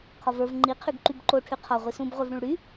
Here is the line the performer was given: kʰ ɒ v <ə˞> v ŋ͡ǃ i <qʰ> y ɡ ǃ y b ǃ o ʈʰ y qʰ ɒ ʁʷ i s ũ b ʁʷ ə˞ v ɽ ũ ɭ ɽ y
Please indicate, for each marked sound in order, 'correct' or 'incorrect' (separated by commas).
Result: correct, correct